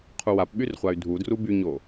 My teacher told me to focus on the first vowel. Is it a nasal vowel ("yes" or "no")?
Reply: no